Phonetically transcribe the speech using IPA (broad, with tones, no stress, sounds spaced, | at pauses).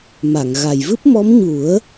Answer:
m a˨˩˨ ŋ ɣ a˨˩ j v ɨ˦˥ p̚ m ɔ˧˥ m ɲ u˨˩˦ ə̯